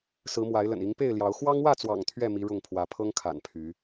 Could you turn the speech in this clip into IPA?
sɹ̩˨˦mwa˨˦ɪ̯lə̰˨˩n i˨˦ŋpe˥˨ɪ̯ljɑ˨˦ʊ̯ xwɑ˦ŋwä˥˨t͡swɑ̰˨˩ŋ t̪ʰɥɛ˥˨mi˨˦ ɻʊ˥˨ŋpʰwä˨˦ pʰɤ˦ŋkʰa̰˨˩n pʰy˨˦

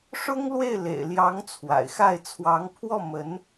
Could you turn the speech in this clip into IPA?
ʂʊ˥ŋlwe˥˩ɪ̯lḛ˨˩ɪ̯ljɑ˧˥ŋ t͡sʰwa̰˨˩ɪ̯xa˥˩ɪ̯ t͡sʰwɑ˧˥ŋpʰwɔ˥˩mə˧˥n

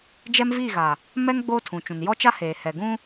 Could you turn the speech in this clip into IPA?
d͡ʒɛ˦mviː˦˨ɣa˨ | mɛ˦ŋ ɡ͡boː˦tʰũ˨t͡ʃũ˨n jɔ˦t͡ʃa˦ heː˨hɛ˨ ɡũ˦

